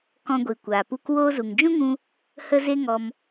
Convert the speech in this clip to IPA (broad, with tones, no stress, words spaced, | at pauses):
kɔ̃˧ɡʷi˨kʷaː˨pu˧k woː˧zu˨ŋd͡ʒũ˦ŋũ˧ | hə˦ze˦ŋɔ˧m